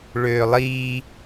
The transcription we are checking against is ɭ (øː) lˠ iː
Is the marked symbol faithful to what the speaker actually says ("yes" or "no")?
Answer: yes